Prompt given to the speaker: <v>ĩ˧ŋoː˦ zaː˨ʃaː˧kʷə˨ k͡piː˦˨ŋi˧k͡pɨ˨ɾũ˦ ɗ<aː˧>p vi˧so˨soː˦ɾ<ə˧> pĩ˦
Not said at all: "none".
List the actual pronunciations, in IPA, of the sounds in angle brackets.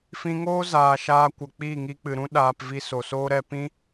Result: f, aː˧, ɛ˧

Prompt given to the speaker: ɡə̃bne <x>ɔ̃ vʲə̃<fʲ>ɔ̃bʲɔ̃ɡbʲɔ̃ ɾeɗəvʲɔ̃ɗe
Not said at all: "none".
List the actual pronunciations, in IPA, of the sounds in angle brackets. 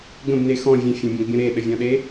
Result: x, fʲ

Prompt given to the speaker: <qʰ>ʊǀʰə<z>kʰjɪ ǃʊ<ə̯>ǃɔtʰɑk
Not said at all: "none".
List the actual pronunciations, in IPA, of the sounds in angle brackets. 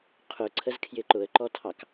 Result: qʰ, z, ə̯

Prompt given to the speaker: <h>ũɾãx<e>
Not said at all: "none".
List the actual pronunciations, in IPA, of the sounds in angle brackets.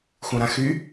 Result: x, y

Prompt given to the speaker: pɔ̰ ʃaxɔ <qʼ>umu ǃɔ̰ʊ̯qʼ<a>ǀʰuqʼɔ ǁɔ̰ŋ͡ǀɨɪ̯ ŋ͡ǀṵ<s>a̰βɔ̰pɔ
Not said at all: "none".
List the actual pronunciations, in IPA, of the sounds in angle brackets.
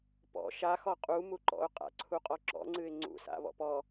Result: qʼ, a̰, s

